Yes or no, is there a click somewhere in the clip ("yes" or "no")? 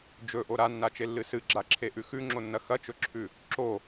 yes